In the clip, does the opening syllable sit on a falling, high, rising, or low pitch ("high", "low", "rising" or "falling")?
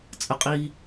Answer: high